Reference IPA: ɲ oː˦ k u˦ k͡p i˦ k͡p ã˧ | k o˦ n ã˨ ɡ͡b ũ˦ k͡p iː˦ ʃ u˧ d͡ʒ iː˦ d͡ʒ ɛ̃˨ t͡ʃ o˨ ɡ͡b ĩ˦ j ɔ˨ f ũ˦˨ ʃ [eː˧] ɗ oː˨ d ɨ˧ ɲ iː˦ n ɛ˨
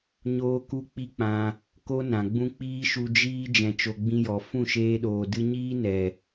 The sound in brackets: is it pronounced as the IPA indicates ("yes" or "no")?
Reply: yes